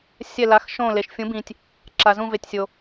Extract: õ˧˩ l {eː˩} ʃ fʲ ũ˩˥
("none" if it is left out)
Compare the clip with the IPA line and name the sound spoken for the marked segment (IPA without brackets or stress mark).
e˩